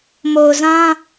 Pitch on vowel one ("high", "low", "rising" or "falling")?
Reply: low